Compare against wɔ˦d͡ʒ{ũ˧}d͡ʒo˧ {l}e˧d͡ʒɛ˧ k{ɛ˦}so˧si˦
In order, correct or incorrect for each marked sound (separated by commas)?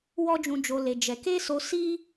correct, correct, incorrect